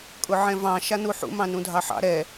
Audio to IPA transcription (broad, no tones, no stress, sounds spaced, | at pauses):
kʼ ʊ ʕ ɛ̃ v ɑ̃ ʃ a n u ħ ṵ m ɑ̃ n ũ dʱ ɑ ħ ɑ̰ ɾ ɛ